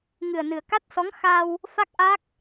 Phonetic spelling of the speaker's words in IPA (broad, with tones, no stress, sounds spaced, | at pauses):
ŋ ɨ˨˩ ə̯ n ɨ˨˩ ə̯ k a˦˥ t̚ s ɔ˧˥ ŋ x a˧ w | f a˦˥ k̚ ʔ a˦˥ k̚